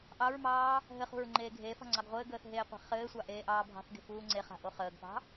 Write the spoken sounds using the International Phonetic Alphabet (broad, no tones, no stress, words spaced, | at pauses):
ʔɑɹmɑː | ɦɘχṳɹ ŋ͡ǃeːɡʱeːfɑ̤ ŋ͡ǀɑɡʁʷɘːɡəːθ ɦeːqʷe̤χɘːsʷɑ ʔeːʔɑːbʱɑ̤θɡe̤ fuːŋ͡ǀeχa̤ ʔoχəːɡpɑ̤